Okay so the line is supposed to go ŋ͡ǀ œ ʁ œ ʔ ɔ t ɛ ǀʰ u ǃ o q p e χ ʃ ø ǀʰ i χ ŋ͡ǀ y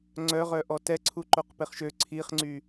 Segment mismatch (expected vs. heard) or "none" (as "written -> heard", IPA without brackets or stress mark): none